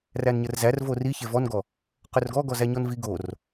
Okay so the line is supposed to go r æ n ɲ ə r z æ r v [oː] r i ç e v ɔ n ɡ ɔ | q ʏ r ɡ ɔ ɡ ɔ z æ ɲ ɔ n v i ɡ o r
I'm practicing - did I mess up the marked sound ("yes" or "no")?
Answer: yes